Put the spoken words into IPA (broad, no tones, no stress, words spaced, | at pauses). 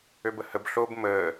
øbəhəb ɬob məː